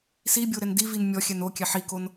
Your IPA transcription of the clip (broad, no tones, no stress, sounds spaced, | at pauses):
s i bʲ o ɾ ɛ n d i v i n mʲ ɔ xʲ ɛ n o kʲ ɛ ħ i k o n